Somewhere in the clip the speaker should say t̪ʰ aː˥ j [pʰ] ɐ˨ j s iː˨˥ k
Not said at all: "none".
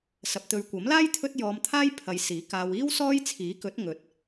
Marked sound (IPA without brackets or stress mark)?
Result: pʰ